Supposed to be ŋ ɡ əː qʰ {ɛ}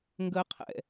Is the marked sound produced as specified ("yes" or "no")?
no